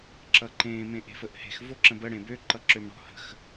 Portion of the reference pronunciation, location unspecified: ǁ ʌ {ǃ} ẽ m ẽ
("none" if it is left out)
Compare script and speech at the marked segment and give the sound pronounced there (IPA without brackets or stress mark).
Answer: ǃ